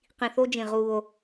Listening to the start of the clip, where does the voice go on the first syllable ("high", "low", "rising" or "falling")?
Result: low